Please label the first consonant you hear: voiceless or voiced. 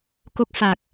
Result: voiceless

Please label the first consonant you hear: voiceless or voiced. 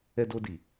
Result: voiced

